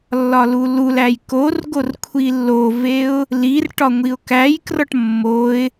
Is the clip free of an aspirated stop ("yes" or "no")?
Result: no